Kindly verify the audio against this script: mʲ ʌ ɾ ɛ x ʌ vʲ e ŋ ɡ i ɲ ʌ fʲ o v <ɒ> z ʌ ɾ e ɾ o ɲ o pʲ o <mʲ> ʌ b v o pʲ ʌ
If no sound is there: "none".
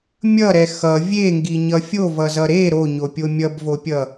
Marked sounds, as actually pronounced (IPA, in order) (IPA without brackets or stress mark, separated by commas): ʌ, mʲ